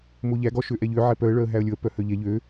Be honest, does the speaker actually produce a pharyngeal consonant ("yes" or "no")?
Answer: yes